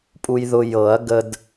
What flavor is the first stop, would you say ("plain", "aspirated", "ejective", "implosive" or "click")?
ejective